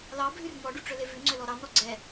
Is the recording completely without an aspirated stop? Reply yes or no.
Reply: yes